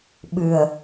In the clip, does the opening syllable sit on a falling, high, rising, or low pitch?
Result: low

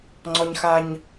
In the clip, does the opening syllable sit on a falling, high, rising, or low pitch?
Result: high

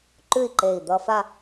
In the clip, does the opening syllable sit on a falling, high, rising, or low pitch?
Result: falling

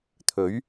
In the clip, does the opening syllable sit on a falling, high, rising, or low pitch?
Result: rising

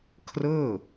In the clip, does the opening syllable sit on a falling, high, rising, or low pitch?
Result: falling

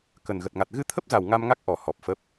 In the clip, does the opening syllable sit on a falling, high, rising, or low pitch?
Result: low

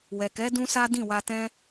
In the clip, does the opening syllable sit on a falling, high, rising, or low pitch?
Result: low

